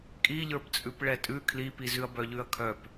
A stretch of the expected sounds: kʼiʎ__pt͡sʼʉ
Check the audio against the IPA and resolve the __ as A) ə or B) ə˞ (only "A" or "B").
B